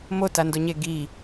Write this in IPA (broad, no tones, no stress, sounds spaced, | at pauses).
m o t a n d o ɲ e ɡ i